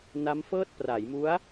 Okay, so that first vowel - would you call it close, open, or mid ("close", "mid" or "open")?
open